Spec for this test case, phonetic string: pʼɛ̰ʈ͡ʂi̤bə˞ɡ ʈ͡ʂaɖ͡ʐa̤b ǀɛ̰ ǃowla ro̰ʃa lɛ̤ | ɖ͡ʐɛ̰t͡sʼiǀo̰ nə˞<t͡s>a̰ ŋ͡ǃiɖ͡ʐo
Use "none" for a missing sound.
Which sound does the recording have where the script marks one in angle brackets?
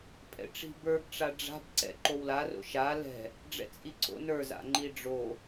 z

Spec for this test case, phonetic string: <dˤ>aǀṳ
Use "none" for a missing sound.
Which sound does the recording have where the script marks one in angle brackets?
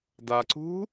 d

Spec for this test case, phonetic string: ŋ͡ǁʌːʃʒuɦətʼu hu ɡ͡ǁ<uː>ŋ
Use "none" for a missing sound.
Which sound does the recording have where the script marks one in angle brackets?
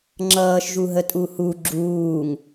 uː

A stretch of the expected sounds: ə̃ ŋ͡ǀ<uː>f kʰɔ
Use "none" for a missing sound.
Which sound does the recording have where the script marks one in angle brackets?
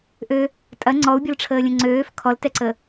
øː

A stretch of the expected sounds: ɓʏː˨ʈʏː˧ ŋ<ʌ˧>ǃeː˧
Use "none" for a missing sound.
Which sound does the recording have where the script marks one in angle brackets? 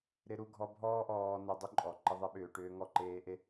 ɔ˧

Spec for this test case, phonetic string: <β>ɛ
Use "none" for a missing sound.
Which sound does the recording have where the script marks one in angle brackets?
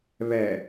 β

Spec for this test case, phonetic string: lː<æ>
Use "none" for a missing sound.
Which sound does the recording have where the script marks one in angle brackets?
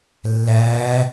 æ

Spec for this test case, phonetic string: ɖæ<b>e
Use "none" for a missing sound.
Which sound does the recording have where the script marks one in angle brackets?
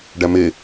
m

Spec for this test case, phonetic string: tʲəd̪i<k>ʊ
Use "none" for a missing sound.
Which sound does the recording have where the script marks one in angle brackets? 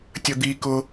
k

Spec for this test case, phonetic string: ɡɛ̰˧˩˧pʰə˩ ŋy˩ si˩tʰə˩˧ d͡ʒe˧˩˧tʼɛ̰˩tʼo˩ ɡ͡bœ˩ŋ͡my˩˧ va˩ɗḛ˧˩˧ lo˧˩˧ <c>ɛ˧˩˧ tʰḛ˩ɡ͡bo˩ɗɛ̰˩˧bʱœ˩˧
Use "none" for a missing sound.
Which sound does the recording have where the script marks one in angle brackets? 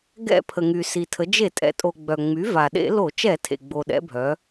t͡ʃ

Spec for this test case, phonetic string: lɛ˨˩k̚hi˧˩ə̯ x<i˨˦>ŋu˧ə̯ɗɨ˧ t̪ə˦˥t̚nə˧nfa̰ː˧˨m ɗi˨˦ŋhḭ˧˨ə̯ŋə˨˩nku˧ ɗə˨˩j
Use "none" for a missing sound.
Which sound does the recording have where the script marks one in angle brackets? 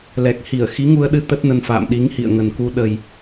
i˨˦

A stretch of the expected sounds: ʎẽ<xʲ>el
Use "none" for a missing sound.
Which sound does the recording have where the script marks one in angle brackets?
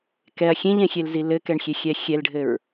xʲ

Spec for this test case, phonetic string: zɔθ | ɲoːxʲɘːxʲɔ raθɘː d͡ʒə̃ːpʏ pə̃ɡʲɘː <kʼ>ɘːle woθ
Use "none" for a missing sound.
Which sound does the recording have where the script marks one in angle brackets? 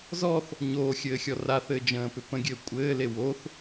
kʷʼ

